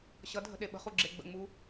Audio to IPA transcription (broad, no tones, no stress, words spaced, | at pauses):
ɕʌdʱə̤ɗe ɓə̤χuɡ͡ǁe ɡ͡bə̰ŋ͡mu